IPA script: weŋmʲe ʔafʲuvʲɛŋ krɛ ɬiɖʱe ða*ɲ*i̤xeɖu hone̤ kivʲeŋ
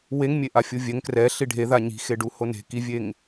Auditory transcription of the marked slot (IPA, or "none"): ɲ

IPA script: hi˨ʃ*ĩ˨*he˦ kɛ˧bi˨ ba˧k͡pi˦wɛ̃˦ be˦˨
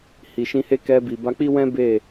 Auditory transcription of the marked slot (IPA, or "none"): ĩ˧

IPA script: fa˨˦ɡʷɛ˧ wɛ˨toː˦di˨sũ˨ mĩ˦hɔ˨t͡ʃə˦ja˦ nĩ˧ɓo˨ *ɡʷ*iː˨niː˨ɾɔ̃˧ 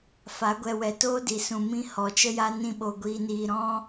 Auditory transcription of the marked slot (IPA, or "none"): ɡʷ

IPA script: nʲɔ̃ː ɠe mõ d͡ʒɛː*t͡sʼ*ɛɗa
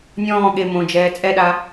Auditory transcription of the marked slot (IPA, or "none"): t͡sʼ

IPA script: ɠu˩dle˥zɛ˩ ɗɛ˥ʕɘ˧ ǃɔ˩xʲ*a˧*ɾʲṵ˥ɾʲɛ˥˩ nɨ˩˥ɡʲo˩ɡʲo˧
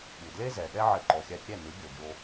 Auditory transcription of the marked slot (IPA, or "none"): a˧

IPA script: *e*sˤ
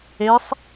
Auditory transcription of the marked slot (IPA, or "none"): e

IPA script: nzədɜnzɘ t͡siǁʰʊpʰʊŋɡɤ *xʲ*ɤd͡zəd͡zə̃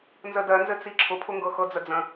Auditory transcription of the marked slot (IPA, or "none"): x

